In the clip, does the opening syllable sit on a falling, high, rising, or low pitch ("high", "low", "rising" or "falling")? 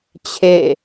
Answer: falling